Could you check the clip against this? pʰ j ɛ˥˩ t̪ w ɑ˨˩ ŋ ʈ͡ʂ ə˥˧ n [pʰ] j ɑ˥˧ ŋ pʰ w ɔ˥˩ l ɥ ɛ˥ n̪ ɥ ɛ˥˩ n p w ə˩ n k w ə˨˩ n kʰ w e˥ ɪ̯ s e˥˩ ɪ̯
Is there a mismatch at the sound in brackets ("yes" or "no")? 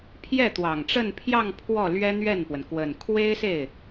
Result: no